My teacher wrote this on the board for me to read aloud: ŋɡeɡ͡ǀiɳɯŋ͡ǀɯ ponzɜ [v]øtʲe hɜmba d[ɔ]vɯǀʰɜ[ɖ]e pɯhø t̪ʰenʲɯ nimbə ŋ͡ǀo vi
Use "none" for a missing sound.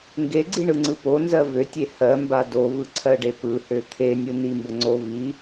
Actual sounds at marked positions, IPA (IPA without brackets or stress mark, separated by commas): v, o, ɖ